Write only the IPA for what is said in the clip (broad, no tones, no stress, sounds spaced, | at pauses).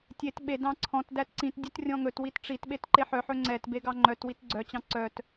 tʲ e t ɓ e d ɑ̃ ǀʰ ɔ̃ t d æ t ǀ ĩ t dʲ ɵ t rʲ ɔ̃ ŋ ɵ t w i t ʈ͡ʂ i t ɓ e t ǃ e ħ œ ħ ɵ ŋ͡ǀ ɛ t b e ɡ ɑ ŋ͡ǃ œ t w i t ɡ͡ǀ œ t͡ɕ ɑ̃ ǀ œ t